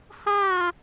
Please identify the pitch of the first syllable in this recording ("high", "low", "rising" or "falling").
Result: falling